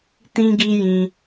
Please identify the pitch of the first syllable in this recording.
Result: high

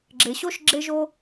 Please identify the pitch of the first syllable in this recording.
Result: low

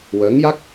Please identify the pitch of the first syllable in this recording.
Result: rising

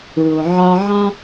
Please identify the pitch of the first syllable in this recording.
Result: low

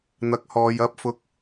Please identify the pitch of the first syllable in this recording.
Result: rising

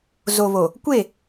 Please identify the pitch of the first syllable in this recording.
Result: low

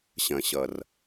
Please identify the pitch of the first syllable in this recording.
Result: low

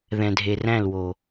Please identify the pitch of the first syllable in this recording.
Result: low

